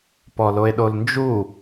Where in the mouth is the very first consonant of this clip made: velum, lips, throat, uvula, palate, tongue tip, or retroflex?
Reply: lips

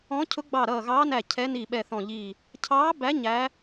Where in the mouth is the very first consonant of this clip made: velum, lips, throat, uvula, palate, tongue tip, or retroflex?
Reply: palate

